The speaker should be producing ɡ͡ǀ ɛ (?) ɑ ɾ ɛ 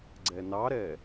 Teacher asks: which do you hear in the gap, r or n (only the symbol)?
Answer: n